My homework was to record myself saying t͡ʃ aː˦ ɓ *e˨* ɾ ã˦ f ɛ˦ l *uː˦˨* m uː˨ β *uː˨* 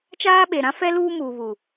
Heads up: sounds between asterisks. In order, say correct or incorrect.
correct, incorrect: uː˦, incorrect: u˨

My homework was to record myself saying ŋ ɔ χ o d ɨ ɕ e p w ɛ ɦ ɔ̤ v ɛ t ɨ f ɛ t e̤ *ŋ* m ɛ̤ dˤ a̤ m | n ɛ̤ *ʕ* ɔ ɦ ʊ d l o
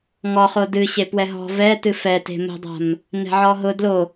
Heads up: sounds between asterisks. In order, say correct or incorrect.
incorrect: none, correct

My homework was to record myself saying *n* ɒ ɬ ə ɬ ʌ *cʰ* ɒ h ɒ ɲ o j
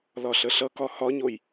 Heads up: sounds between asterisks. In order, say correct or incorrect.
incorrect: l, incorrect: k

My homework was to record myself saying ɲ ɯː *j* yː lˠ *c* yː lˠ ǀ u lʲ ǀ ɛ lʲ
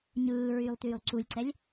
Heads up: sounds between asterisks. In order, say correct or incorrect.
incorrect: ɹ, incorrect: t

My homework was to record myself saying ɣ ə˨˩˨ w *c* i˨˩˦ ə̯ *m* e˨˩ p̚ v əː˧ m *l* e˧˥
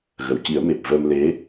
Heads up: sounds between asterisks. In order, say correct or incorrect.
correct, correct, correct

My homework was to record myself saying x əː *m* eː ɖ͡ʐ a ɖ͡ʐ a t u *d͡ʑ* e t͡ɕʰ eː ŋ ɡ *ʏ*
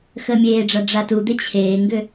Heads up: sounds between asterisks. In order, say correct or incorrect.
incorrect: mʲ, incorrect: d̪, correct

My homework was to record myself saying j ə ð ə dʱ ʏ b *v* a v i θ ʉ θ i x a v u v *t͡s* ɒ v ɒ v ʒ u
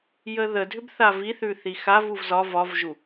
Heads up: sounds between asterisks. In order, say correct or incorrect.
incorrect: θ, incorrect: z

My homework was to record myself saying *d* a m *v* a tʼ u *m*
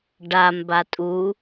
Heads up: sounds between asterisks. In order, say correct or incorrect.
incorrect: ɖ, incorrect: b, incorrect: none

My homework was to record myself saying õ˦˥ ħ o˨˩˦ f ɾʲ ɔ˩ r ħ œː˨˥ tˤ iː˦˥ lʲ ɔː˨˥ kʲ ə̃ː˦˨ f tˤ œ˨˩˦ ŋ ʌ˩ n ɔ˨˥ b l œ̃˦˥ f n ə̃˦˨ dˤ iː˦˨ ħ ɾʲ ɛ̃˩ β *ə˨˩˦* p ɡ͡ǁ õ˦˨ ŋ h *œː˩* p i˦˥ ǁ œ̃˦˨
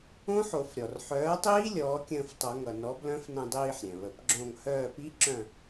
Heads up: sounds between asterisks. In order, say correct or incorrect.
correct, incorrect: œː˦˨

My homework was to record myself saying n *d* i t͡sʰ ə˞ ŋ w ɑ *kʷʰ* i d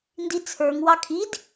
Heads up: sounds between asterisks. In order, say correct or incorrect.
correct, incorrect: kʰ

